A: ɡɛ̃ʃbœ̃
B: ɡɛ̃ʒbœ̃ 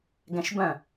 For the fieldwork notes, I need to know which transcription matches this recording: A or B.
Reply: A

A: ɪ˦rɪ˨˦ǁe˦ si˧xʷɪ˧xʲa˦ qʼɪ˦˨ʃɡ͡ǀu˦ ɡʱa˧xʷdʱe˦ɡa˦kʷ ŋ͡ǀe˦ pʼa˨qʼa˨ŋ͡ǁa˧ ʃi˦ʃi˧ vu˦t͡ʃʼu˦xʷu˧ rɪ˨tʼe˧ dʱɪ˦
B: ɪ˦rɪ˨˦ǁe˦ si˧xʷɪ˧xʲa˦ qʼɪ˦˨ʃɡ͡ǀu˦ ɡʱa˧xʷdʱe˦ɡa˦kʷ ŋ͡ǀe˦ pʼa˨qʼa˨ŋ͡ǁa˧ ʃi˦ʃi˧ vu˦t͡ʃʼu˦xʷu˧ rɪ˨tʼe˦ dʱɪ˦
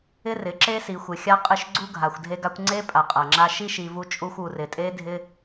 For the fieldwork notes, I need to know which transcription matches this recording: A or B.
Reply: B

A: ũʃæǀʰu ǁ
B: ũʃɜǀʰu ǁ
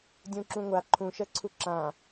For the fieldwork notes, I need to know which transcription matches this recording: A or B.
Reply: B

